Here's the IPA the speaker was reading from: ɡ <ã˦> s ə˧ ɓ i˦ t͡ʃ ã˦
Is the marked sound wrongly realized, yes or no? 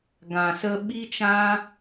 yes